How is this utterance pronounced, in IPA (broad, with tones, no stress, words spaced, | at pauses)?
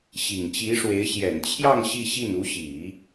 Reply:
ɕi˨˩ŋt͡ɕi˧˥ʂwe˧˥ɪ̯ ɕjɛ˨˩nt͡ɕʰjɑ˥˧ŋ ɕi˥˧ɕi˥˩n u˧˥ɕi˨˩˦